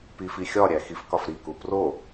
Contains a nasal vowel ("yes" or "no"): no